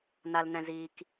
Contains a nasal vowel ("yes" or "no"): yes